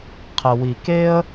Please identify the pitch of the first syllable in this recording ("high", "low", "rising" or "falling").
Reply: low